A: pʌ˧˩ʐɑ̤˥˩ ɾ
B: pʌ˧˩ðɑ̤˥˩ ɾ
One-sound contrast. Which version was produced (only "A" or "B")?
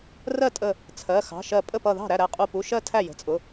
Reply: B